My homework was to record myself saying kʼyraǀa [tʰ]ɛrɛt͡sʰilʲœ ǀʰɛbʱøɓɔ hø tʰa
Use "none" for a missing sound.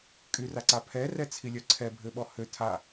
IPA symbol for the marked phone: pʰ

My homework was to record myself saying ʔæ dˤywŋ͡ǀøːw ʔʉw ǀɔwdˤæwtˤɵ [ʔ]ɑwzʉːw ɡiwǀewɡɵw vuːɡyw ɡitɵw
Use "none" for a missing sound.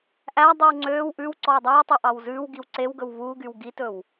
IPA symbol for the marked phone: ʔ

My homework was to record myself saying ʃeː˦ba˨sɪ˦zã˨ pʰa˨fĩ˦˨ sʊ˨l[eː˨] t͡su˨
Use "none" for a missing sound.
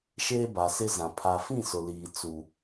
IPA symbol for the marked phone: iː˨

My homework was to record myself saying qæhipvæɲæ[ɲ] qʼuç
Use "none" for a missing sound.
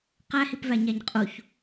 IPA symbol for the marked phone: ɲ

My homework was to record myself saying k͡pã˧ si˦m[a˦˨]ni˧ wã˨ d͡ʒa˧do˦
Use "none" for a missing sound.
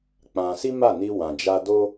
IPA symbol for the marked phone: a˦˨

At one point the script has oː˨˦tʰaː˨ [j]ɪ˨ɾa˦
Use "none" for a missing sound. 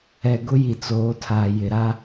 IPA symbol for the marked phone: j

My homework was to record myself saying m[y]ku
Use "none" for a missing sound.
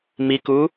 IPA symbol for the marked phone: i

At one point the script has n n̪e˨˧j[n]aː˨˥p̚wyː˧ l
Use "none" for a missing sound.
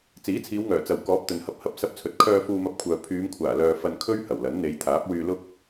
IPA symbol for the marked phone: t̪ʰ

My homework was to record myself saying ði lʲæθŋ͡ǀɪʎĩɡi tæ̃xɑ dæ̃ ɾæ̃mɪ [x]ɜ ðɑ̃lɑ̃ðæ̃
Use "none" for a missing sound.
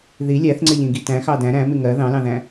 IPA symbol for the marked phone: ŋ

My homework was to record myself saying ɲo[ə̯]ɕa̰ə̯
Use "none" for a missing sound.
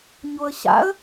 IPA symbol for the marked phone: ə̯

